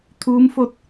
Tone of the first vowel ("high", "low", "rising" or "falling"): rising